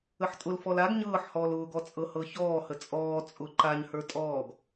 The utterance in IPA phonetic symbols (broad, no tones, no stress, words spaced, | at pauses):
əħtʼʊlfɔl aɡ ɲɤːħhɔːl ʊːɡɔ t͡sʼɤhɤçɔːhə t͡sʼɔː t͡sʼʊ ǃaɲhə˞ tʼɔːɡ